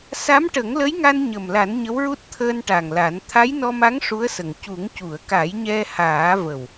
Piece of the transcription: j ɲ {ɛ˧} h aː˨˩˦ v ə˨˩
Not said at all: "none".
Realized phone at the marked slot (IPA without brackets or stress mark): ɛ˧